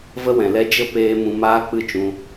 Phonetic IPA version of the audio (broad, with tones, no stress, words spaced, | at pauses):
və˦wɛ̃˨lɛ˦ d͡ʒə˦peː˧ mũ˧maː˦k͡pɨ˦˨ t͡ʃũ˧